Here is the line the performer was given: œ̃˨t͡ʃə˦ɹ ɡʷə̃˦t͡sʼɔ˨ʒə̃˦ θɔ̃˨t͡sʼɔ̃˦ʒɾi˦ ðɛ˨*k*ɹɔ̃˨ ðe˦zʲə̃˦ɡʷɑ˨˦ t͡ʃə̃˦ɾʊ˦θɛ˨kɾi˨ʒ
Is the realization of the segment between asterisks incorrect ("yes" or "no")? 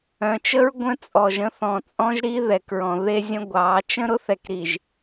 no